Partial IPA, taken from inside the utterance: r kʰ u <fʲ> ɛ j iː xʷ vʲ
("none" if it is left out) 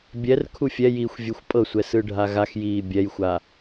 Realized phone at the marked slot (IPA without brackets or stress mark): fʲ